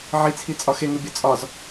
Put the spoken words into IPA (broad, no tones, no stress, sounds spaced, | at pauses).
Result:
ʕ i t͡sʰ i t͡sʼ ɒ x e ŋ u bʲ ɒ t͡sʼ ɒ z